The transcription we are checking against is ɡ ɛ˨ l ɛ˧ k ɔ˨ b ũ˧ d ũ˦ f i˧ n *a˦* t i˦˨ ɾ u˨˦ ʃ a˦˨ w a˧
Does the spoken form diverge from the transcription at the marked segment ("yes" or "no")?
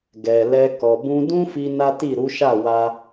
no